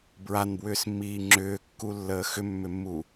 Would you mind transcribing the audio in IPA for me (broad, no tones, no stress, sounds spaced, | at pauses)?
b ɹ a n b w ʏː s mː iː ŋ͡ǁ ʏː kː u lː əː x ʏ mː ʏ mː u